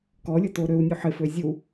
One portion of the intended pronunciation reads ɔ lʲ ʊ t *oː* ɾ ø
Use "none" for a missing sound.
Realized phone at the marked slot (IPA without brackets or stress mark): oː